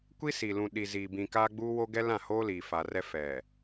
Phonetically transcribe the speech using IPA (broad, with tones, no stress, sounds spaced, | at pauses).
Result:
kʷ i˦ s i˨ l ũ˨ ɗ i˨ z iː˨ b ĩ˨ k aː˦ ɡ͡b uː˦ w o˦ ɡ ɛ˦ l ã˦˨ h oː˦ l iː˨ f a˨ r ɛ˦ f ɛ˨